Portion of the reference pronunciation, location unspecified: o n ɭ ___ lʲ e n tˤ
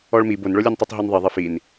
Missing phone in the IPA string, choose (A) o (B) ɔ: A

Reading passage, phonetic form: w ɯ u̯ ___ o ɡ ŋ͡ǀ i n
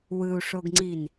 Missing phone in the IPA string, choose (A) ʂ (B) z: A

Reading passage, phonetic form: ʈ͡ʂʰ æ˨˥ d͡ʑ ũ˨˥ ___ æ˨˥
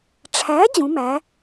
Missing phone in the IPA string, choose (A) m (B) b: A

